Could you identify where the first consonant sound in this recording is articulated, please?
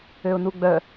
alveolar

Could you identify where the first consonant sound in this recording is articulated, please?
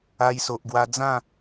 palatal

